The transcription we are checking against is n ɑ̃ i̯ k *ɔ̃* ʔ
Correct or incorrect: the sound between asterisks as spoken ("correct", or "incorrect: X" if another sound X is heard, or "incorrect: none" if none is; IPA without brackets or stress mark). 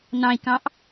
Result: incorrect: ɑ̃